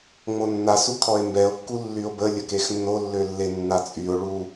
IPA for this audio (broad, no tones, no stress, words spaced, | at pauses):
ŋ͡monːa sukʰɔe̯mbɛo̯ kːulːyo̯bə lʲəkexnːolːø lːenːat͡sʼyo̯ɭu